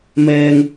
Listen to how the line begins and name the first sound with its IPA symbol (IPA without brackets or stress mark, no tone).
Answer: m